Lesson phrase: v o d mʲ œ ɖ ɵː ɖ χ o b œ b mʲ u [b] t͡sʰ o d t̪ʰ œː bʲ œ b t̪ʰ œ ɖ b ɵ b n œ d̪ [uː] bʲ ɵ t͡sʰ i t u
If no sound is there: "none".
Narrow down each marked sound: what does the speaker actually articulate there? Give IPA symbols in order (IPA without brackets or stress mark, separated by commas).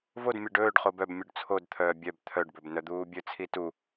ɖ, uː